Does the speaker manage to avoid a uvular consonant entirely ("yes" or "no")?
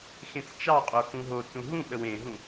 no